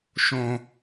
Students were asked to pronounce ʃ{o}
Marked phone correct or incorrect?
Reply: incorrect